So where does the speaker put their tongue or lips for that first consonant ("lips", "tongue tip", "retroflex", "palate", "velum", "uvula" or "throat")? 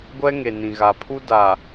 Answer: velum